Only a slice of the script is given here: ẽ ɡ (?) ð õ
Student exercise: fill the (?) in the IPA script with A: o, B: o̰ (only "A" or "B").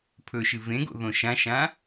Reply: B